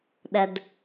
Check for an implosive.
present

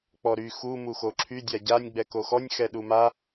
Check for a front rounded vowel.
present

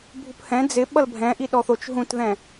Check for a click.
absent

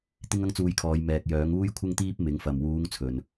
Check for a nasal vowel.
absent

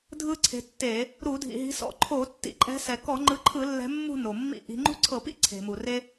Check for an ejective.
present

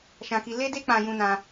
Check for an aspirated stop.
absent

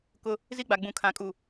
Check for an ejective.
present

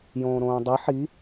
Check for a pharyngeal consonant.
present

